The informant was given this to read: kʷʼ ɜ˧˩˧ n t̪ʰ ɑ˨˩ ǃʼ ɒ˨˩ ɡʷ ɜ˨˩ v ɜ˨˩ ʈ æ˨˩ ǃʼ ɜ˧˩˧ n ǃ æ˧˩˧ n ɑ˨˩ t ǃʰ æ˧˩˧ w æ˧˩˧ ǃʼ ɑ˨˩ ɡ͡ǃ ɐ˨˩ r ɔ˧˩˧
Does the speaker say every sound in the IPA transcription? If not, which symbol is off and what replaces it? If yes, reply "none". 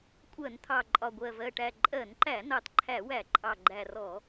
ɐ˨˩ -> æ˨˩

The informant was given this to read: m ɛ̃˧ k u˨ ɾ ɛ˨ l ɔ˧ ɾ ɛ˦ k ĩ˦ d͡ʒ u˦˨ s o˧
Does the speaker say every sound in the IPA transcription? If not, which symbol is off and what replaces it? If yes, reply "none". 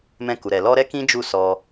o˧ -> ɔ˧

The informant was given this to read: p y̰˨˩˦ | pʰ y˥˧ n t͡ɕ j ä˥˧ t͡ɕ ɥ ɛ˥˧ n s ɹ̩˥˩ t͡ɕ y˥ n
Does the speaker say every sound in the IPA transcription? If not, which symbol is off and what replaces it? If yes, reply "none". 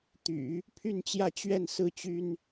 p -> t̪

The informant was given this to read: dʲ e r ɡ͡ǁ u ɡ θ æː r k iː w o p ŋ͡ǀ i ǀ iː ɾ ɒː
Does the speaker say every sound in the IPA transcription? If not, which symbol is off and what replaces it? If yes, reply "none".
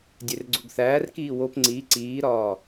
ɡ͡ǁ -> ɡ͡ǀ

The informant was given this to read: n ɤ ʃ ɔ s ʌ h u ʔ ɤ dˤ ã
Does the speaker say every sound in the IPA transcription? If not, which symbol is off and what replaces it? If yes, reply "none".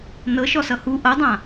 none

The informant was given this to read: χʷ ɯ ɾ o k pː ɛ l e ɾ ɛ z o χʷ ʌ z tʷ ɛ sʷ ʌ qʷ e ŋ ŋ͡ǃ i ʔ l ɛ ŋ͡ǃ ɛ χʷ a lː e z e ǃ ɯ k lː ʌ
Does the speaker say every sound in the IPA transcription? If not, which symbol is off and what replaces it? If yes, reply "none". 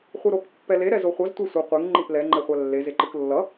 none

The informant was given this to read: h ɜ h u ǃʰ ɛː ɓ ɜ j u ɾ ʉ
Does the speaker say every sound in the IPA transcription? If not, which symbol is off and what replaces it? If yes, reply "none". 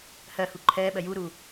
ʉ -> u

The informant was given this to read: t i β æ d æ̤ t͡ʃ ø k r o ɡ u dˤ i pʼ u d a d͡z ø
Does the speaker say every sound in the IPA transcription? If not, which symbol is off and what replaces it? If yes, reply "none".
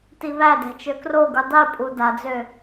none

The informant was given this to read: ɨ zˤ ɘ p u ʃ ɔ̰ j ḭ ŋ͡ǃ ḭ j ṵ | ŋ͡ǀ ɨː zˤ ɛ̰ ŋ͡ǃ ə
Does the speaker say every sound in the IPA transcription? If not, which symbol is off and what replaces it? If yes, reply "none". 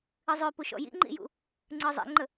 ɘ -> ø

